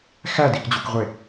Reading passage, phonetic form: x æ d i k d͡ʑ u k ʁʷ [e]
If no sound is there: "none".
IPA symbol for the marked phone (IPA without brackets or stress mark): e